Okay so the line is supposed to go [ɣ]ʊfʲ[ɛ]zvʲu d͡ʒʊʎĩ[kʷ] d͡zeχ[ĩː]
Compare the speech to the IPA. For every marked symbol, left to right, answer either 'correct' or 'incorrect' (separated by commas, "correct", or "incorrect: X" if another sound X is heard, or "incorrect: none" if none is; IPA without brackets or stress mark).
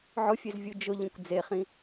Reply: incorrect: ʕ, incorrect: e, correct, incorrect: ĩ